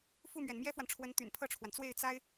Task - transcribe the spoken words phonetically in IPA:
f u˥˩ m ɥ ɛ˩ n m j ɛ˥ f w a˨ n ʈ͡ʂʰ w ə˧˥ n t̪ y̰˨˩ n pʰ ɤ˥˩ ʈ͡ʂʰ w a˩ n t͡s w e˥˩ ɪ̯ t͡s a˥ ɪ̯

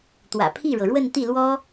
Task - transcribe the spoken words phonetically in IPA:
t̪ w ä̰˨˩ pʰ i˥˩ ɻ ɤ˩ ɻ w ə˥˧ n t̪ i˥˩ l w ɔ˥

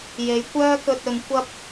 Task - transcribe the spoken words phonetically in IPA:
j e˨˥ j kʷ œː˥ k ɵ˧ t̚ ɵ˨˧ n kʷ ɐ˥ p̚

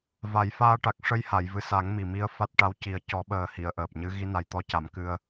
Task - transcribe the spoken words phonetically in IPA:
v a˨˩˦ j f aː˧ ʈ a˨˩ k̚ ʂ ə˧ j h a˨˩˨ j v ɨ˨˩ s a˨˩˦ ŋ m i˨˩ m i˧ ə̯ f a˦˥ t̚ ʈ a˧˥ w c i˨˩ ə̯ c ɔ˨˩˦ ɓ əː˨˩ h i˨˩˨ ə̯ ʔ əː˨˩ p̚ ɲ ɨ˧˥ ɣ i˧˥ n a˨˩ j t̪ ɔ˧ c a˨˩˨ m k ɨ˨˩ ə̯

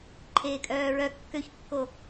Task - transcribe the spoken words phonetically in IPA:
ǃʰ eː kʼ œː ɹ œ kː ø ç kː o

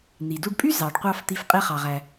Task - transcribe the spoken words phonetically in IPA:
n̪ i˩ d u˧ ɖ pʼ y˥ z ɑ˩ ɖ qʷ ɑ˧ f t̪ i˧ f qʼ e˥ χ ɑ˩ ʁ æ˩

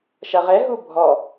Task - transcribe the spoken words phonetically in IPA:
ʃ ɐ ʁ ɛ ɦ u bʱ ɔ

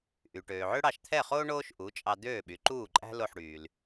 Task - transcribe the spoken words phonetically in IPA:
ʔ y˩ ʈ øː˩ ʕ ø˥ ɽ ɑ˧ ʃ t̪ʰ ɛ˥˩ χ oː˥ ɳ oː˥ ʃ ʔ u˩˥ t͡ʃʼ ɑ˧ d̪ øː˥˩ ɓ y˩˥ ǃ uː˥˩ ǃʼ æ̤˥ l o˥˩ ħ ɽ yː˩ l

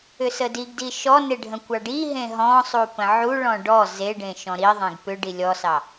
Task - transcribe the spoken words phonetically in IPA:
ʏ s ə d i ɡ d i ʃ ɔ n e ɖʱ ə̃ kʷ ɑ ɖ i ɦ ẽ ɦ ɔ̃ sˤ u p ə̃ ʕ u ɭ ɔ̃ ɖ ɔ z e ɖ ẽ ʃ ɔ̃ ɾ i ðˤ ẽ ɡ p ʏ ɖ i lʲ ɔ s ɑ

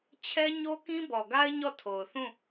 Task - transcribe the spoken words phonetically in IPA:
t͡ɕʰ ɛ˦ ɲ o˦ k ĩ˦ b ɔ˨ ɡ a˦ ɪ̯ ɲ ɔ˦˨ tʰ o˨ ʊ̯ θ ũ˦˨

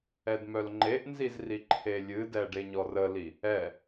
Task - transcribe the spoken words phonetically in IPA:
ɛ d m œ l ŋ͡ǃ e ʔ n z i z r i ǃʰ e lʲ ɨ d ɛ ɖ e ɲ ɔ r ə l i | ɛ

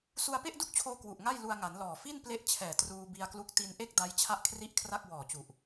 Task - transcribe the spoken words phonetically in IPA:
s u˧ a̯ p e˥˩ ʔ d u˥˩ k̚ t͡ɕʰ oː˧ k w u˨˩ ʔ ŋ a˥˩ j l u˧ a̯ ŋ a˩˦ n l ɔː˨˩ f i˥˩ n p l e˦˥ ʔ t͡ɕʰ ɛː˨˩ t r uː˧ b i˧ a̯ k l u˦˥ k̚ t i˧ n ʔ e˥˩ k̚ d a˦˥ j t͡ɕʰ a˥˩ ʔ kʰ r i˥˩ ʔ kʰ r a˥˩ k̚ w ɔː˨˩ t͡ɕ u˨˩ ʔ

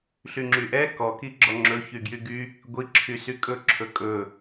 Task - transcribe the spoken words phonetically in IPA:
ɬ y ŋ͡ǁ y ʔ ɛ k ɔ k i ɡ͡ǁ ɔ ŋ͡ǁ ɵ ç y ɡ j y ɡ y | ɡʷ i ǁʰ y s y kʼ ɵ ǁʰ ɵ kʼ ɵ

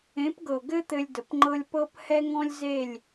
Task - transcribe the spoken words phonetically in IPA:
ẽ˨˦ p ɡ ɤ˨ ɡ ɘ˦ t̪ ɘ˧ lʲ d ə˨ p ŋ͡ǃ ɤ˦ lʲ p ɤ˦ p h ɛ˦ ŋ ɔ̃˦ lʲ z e˦˨ lʲ

